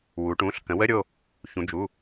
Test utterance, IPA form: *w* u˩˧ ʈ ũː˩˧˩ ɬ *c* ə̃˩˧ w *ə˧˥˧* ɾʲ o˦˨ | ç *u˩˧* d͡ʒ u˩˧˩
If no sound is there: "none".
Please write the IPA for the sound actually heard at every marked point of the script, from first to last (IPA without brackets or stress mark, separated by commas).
w, k, ə˧˥˧, ũ˩˧